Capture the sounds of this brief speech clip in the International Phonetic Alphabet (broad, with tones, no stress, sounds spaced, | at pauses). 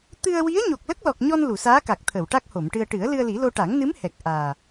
t̪ ɨ˧ ə̯ w i˧˥ ə̯ ɲ o˨˩ k̚ l ə˦˥ k̚ l ɔ˨˩ k̚ ɲ ɔ˧ n l u˨˩˨ s aː˧˥ k a˨˩ k̚ t̪ʰ əː˨˩˨ w ʈ a˦˥ k̚ h o˨˩˨ m ʈ ɨ˧ ə̯ ʈ ɨ˨˩˦ ə̯ l ɨ˧ ə̯ l i˨˩˦ l o˧ ʈ a˨˩˦ ŋ n ɨ˧˥ m h ɛ˨˩ k̚ ʔ aː˨˩